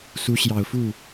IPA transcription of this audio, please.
s u˧˥ ɕ j ɑ˨˩ ʊ̯ f u˥˩

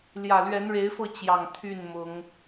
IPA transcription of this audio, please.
l j ä˨˩ l ɥ ɛ˨˦ n ɻ e˨˦ ɪ̯ f ɤ˧ t͡ɕ j ɑ˨˩ ŋ t̪ʰ y˥˨ n m ʊ˨˦ ŋ

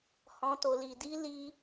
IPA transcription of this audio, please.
h ɔ̃˦ t o˧ l i˧ d i˦ l i˦

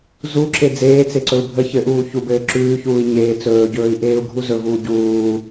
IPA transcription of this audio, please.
z u ǁ e d͡z eː t͡s e ǀ ɵ u̯ bʱ ə ç ɘ ʔ uː ç u b ɘː ǁ ʉː ç uː i̯ ɲ eː t͡s ɵː ɟ ɵː i̯ ʔ eː u̯ ɡʱ u z ɵ v uː ɟ uː

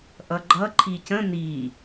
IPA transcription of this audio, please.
ʔ ʌ ɡ͡ǃ ʌ ǃʰ i c ə̃ n i

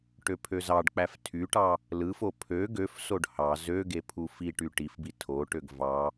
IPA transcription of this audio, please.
ʈ ø pʰ ø z ɑ ɖ k͡p æ f tʰ y ʈ ɑ | l ɯ f o pʰ ø ɡ ø f s o ɖ h ɑ z ø ɡ e pʰ u f i ʈ y ʈ i f b i tʰ o ʈ ø ɡ v ɑ

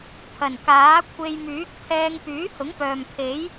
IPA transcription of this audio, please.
pʰ ɐ˨˩ n k aː˨˥ kʷʰ e˧ j m yː˨˥ k̚ t̪ʰ ɛː˧ ŋ p yː˨˥ h ʊ˨˥ ŋ p œː˨ m pʰ e˨˥ j

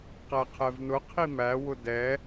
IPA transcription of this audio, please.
q æ qʰ ɛ v n ʊ qʰ i m æ w ʊ d ɛ

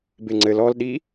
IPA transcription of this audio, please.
b e ŋ͡ǀ ɘ l ɔ l ɗ i

